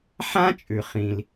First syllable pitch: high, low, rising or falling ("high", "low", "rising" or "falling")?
high